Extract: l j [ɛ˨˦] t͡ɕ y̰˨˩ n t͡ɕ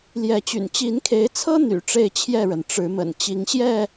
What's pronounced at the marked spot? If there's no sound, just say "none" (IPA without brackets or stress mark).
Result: ɛ˨˦